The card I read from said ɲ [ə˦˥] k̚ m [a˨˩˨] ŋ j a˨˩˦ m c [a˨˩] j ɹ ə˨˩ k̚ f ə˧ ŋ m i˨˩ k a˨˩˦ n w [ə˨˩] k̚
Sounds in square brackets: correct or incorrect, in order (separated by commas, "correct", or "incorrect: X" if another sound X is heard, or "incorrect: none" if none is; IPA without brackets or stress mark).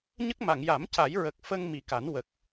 correct, correct, incorrect: a˨˩˦, correct